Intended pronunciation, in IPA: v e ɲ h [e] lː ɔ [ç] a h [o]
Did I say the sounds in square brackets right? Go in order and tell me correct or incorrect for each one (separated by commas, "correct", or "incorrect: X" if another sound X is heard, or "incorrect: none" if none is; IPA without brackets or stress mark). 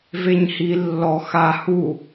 incorrect: i, incorrect: x, incorrect: u